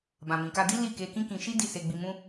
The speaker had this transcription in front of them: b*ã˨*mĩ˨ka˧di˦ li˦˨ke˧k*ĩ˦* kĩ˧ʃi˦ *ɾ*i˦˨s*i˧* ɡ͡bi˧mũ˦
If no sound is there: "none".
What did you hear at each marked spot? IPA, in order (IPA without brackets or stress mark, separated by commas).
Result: ã˨, ĩ˦, d, e˧